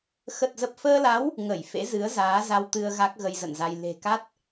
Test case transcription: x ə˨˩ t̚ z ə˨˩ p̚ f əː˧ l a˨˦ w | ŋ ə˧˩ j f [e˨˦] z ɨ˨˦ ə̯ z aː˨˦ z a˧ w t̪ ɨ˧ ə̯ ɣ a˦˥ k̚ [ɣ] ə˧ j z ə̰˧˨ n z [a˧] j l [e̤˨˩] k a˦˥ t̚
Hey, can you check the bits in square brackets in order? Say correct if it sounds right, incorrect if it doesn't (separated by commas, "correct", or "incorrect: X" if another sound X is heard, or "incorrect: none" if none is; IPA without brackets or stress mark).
incorrect: ḛ˧˥, correct, correct, correct